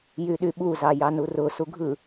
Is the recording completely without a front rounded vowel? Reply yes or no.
no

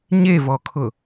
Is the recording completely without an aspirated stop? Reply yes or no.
no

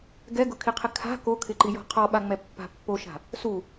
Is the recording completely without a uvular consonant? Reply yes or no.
no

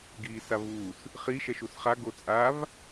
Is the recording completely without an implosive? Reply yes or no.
yes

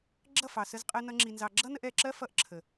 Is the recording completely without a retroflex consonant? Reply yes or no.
yes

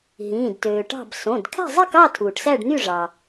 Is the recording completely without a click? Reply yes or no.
yes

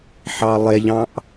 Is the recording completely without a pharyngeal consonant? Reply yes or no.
no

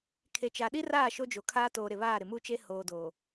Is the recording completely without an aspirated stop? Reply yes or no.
no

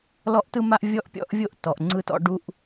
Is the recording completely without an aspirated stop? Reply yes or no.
yes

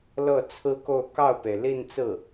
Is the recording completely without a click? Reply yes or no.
yes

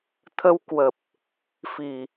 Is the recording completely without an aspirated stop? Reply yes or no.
no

